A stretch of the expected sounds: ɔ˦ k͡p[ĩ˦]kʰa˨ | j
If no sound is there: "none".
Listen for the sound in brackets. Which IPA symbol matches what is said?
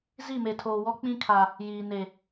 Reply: ĩ˦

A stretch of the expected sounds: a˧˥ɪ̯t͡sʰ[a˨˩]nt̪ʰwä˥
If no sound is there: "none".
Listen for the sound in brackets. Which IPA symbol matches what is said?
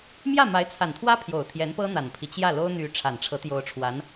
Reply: a˨˩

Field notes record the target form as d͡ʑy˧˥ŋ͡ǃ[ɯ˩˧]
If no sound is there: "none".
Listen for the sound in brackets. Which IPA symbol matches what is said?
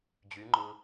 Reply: ɯ˧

